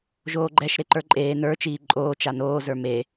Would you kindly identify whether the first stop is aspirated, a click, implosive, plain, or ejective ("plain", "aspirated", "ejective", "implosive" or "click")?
click